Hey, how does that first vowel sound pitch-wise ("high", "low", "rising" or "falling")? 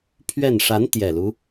falling